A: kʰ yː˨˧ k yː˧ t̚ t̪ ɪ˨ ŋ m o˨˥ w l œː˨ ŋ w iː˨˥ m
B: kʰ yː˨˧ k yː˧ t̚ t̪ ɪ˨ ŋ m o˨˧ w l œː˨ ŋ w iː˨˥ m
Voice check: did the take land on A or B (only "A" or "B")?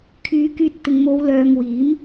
B